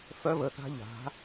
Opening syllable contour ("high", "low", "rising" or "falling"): high